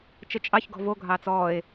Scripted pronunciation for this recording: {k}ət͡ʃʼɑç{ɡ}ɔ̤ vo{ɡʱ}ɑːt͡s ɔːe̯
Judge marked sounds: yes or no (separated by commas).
no, yes, yes